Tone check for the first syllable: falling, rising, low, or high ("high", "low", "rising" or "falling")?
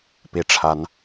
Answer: rising